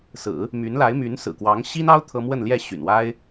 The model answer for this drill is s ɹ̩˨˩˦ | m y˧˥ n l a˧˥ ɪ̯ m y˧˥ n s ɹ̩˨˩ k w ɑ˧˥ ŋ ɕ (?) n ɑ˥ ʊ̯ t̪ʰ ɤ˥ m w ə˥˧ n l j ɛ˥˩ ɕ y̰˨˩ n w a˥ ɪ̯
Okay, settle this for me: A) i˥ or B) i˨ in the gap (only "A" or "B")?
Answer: A